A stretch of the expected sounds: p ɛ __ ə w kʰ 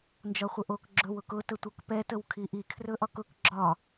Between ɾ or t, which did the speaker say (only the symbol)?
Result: t